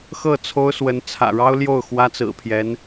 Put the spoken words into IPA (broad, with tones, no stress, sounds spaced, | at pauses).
x ɤ˥˩ t͡sʰ o˥ ʊ̯ s w ə˧˥ n t͡sʰ ä̰˨˩ ɻ ɑ˥ ʊ̯ l j o˥˩ ʊ̯ x w ä˥ t͡s ɹ̩˨˩ pʰ j ɛ˧˥ n